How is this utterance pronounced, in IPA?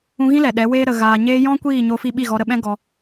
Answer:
ũ˧ɣĩ˦lɛ˨ ɗɛ˨˦weː˦ ɾə˨ɣaː˨ ɲeː˧jɔ̃˦ kʷiː˦˨ɲo˧fi˧ ɓi˦˨ɣɔ˧ɾə˧ɓɛ̃˦ ɡɔ˧

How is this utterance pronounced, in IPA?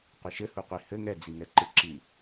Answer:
qʷɨʃɘhuqʷi hɘ ŋɛd͡ziŋɛǃɨ ǁi

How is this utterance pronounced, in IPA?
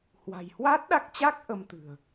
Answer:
hwa̤˨˩jhwa˦˥t̚ɗa˦˥k̚t͡ɕa˦˥k̚ ʔə˧mt̪ɨ̤˨˩ə̯

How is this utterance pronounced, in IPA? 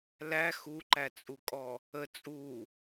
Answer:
læ xuǃæt͡sʼukʼɔ | ə t͡sʼu

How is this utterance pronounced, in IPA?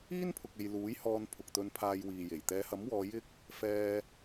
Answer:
iː˥n pʰʊ˧k̚e˧j luː˨˥jhɔː˧n pʰʊ˨k̚ t̪ɵ˨npʰaː˨j wiː˨je˨˩j t̪ɛː˨˧hɐ˨˥mwɔː˨˧ jɪ˥k̚ | fɛː˧

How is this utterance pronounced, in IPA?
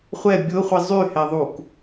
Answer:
χʷɛ bʲʊχʷi zˤyhɛðˤuk

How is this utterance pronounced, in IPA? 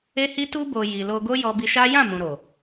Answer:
e˦hi˦ tu˧bo˨ ji˨ lo˧ɡo˦ jɔ˧bi˧ʃa˦ jã˦˨ mũ˨ɾo˨

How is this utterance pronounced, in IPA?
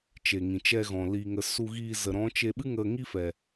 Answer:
t͡ʃe˨ŋĩ˨t͡ʃɛ˧ɣɔ̃˨ li˨ŋə˨ su˧ɣiː˧zə˨ ɾɔ̃˨˦t͡ʃe˧ɓɨ˦ ŋə˧ŋi˦fɛ˨

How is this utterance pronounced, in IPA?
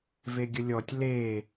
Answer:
veɡʲəlʲɔtʲ le

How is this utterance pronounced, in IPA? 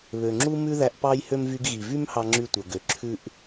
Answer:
βø˩ŋ͡ǁu˥ mʉ˥ðæ˧ʔ pɑ˥j hø˥m vy˧ɡɣi˩vy˥m hɑ˥ŋ͡ǁy˥tʷœ˩ɡø˩ ǁʰʉ˥ʔ

